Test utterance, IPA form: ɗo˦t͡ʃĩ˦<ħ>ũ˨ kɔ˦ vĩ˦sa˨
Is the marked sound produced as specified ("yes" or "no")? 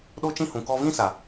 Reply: no